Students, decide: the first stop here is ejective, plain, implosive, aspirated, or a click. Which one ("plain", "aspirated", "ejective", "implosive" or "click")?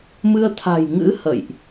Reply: aspirated